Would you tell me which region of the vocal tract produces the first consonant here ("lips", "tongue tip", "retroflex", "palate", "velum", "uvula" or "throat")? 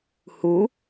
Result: throat